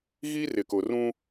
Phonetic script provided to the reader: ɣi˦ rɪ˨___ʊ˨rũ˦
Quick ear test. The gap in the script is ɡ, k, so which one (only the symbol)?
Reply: k